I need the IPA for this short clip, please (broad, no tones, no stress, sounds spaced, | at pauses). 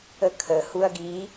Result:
ə kʰ ə h u ɐ̯ ɡ i